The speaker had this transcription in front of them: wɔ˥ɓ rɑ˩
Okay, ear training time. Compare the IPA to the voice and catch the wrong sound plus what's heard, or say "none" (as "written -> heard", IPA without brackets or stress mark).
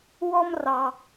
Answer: ɓ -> m